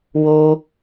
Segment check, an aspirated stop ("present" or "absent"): absent